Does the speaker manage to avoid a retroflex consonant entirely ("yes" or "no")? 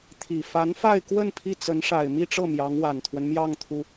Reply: no